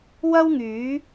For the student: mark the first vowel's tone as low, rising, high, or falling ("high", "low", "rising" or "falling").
high